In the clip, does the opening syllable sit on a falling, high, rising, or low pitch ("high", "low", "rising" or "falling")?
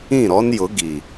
falling